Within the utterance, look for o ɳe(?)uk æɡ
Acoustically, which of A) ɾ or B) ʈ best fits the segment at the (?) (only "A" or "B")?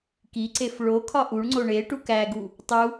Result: B